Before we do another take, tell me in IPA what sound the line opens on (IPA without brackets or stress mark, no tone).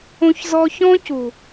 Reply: õ